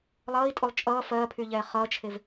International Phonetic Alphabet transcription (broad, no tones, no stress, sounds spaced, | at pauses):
lˠ ʌː i̯ tʼ o lˠ t͡ʃʼ ʌː f ɜː pʰ yː ʎ ɛː χ ʌː t͡ʃʰ e v